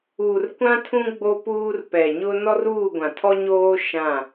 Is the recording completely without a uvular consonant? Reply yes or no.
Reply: yes